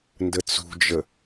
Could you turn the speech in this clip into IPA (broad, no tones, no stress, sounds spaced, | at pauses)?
n d ə t͡s ṳ d͡ʒ ə